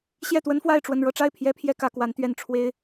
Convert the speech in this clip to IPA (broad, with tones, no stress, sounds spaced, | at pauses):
ɕ j ɛ˥˩ t̪ w ə˥ n f w a˥˧ ɪ̯ ʈ͡ʂ w ə˥˧ n ɻ ɤ˥˧ ʈ͡ʂ a˥˩ ɪ̯ pʰ j ɛ˥ pʰ j ɛ˥ k ä˧˥ k w a˧˥ n t̪ ɥ ɛ˥˩ n ʈ͡ʂʰ w e˥ ɪ̯